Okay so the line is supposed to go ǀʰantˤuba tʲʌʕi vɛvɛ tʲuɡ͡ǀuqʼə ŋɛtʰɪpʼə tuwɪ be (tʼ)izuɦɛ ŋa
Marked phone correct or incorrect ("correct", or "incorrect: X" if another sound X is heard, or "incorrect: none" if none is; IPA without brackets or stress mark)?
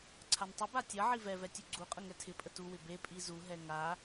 incorrect: pʼ